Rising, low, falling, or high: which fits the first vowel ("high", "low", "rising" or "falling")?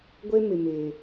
high